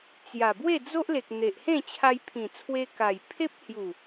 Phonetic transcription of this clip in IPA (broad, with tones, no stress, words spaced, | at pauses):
t͡sja˨˩bwe˥˧ d͡zo˦ʔ le˨k̚n̪e˨ʔhẽ˥˧ t͡ɕʰa˧jpʰĩ˨˩t͡sʰwe˧ ka˨˩jpʰe˦p̚hju˨˩